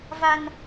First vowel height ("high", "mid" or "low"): low